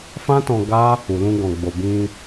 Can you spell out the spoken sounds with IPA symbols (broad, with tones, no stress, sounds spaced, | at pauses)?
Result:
f ã˦ t ɔ̃˧ ɡ a˦ | u˨ l ũ˧ ɡ ɔ̃˨ ɡ͡b o˨ b ĩ˧